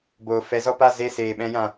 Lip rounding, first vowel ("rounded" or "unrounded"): rounded